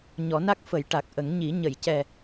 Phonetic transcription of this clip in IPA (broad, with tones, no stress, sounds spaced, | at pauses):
ɲ ɔ˨˩˦ n a˦˥ k̚ f ə˨˩˦ j ʈ a˨˩ k̚ ʔ ə˨˩˦ ŋ ɲ i˨˩˦ ɲ ə˨˩˨ j c ɛ˨˩